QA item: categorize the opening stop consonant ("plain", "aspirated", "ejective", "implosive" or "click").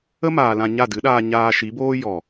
plain